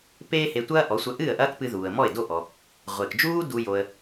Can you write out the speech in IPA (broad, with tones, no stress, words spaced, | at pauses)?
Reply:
peː˥he˧tʷɐː˥ ʔɔ˩˥ sʷɐ˧ʔɨː˥˩ə̯ʔɐː˥kpɨ˧ ðuː˩ə̯mɔ˥˩ɪ̯do˥˩ʔɔ˩ | ʁʷe˩kd͡ʒuː˥ du˧ jo˧ə̯